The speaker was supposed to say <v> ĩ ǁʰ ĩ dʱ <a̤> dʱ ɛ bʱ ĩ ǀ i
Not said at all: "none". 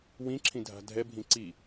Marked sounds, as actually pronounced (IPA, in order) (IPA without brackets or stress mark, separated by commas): w, a̤